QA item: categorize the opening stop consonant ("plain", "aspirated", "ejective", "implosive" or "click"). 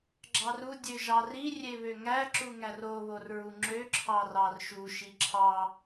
click